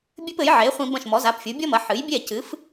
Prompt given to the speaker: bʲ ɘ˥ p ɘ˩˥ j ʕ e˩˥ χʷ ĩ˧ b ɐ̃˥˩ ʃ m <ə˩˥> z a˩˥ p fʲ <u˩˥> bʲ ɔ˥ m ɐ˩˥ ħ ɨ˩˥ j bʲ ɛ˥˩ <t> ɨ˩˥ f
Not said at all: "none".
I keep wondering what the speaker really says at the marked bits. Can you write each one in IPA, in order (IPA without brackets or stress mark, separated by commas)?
ɔ˩˥, u˩˥, c